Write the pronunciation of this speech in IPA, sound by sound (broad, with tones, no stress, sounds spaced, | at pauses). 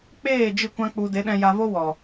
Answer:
k͡p eː˦˨ d͡ʒ ɨ˦˨ kʷ ã˦ k͡p u˧ d e˨˦ ɗ ɛ̃˧ j a˧ v o˦ w ɔ˨